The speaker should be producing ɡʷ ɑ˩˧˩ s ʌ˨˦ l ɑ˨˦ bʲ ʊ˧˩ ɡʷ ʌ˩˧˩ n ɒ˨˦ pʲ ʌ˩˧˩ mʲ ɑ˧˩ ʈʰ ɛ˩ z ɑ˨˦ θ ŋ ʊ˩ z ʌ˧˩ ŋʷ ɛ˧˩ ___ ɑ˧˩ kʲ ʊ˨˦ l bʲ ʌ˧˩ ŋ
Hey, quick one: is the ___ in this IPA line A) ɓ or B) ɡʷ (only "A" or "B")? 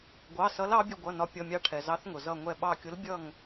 A